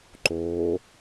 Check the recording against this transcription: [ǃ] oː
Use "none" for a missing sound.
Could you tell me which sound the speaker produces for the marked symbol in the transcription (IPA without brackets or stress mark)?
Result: ǃ